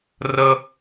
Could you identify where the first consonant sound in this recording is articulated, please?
alveolar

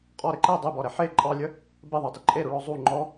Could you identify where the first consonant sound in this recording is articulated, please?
uvular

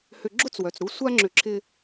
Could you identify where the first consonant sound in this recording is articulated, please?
glottal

